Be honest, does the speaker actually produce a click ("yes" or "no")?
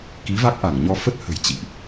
no